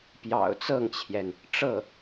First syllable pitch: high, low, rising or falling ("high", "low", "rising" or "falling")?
low